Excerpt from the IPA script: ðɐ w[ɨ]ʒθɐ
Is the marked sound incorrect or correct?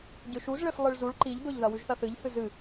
incorrect